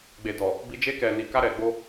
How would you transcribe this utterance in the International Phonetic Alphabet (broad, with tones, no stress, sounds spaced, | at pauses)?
ɡ͡b e˨ d ɔ˨ | b i˧ d͡ʒ e˧ k ɛ˨ n i˨ k a˧ ɾ ɛ˨ ɡ͡b o˧